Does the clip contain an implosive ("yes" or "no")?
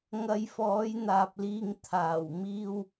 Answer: no